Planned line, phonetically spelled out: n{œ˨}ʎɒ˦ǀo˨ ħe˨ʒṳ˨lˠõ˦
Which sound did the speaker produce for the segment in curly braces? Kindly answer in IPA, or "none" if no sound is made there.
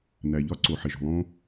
æ˨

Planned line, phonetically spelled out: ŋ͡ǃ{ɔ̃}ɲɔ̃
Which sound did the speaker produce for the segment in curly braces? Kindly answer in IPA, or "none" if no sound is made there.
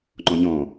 ɔ̃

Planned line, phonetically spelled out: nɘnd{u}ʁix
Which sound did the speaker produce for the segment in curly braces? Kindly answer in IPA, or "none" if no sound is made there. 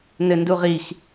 u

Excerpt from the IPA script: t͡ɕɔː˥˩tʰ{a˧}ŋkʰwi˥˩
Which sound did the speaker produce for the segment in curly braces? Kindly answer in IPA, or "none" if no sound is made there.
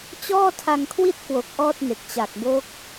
a˧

